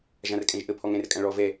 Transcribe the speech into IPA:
ʒ ã r kʼ ɛ̃ ʒ ʔ ə pʰ ɔ ŋ ɛ̃ r kʼ ã ɭ ɔ v ɛ

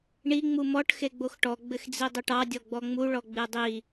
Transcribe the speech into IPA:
ɳ i ŋ͡m u m ɔ ʈ x e ɡ͡b o x ʈ ɔ ɡ͡b ɘ x d͡z i dˤ o ʈ ɑ dʲ ɔ ɡ͡b ɔ ŋ͡m u ɭ ɔ ɡ͡b e dˤ i

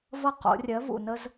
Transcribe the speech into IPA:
v ʌ˥˨ q o̰˨˩˦ rʲ ɜ˩˥ v ṵ˨˩ n ə˥ z

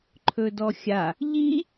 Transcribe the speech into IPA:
ǃʰ ɵ d ɔ xʲ a | ʎ i

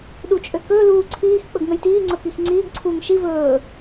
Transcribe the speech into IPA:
ɗ u t͡ʃʼ ø k ɵː l uː ǀʰ iː x k͡p ɵ ɡ ŋ ə j t iː ŋ͡ǀ ɵ k i x ŋ͡ǀ iː ɡ ǀʰ uː ŋ ʃ i v ɵː

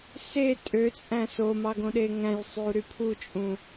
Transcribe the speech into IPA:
s e tʼ ø t͡sʼ æ̃ s o m ɑ ɡ õ ɗ e ŋ æ̃ j sˤ y u̯ ɾ y pʰ u t͡ʃʼ ũ

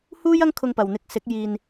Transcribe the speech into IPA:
h uː˥ j ɐ˥ ŋ kʰ ʊ˧ ŋ p ɐ˨ w n̪ ɪ˨˥ k̚ s ɪ˨˥ k̚ j iː˧ n

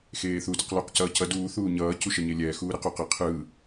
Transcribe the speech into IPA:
x eː θ u d ɯ q l o q c ʌː c ʌ d uː θ uː ɲ ʌː c u ʃ ʌ ɲ e lʲ ɛː x uː ɾ e q u q ɛ qʰ ɯ

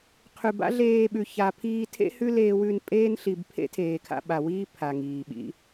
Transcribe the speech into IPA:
qʰ ʉ˨ b a̰˦ ɮ eː˧ ɓ ʉ˨ ç a˨ pʰ iː˧ tʰ ḛ˦ h ʉ˦ l eː˧ w ʉ˧ n pʼ eː˧ n ɬ i˨ b pʰ ḛ˦ tʰ eː˨ kʰ a̰˧ ɓ a˨ w iː˦ pʰ a˨ ŋ iː˨ ɓ ḭ˦

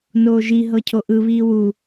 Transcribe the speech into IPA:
n oː ʒ i ɦ ɤ cʰ o ʔ ɯ β iː w u

